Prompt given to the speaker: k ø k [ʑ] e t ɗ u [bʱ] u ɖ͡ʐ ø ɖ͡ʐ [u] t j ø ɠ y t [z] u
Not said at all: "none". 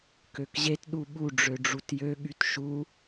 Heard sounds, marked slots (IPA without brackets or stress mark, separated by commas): ʑ, ɓ, u, ʃ